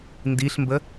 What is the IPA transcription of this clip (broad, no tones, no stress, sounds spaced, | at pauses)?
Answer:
n d i ɬ m b ə